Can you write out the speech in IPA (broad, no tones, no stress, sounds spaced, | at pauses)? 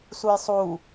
s u j sˤ u